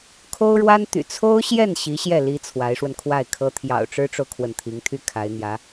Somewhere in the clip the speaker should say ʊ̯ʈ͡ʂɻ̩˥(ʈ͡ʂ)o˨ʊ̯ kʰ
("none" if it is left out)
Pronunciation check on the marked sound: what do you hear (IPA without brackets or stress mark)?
ʈ͡ʂ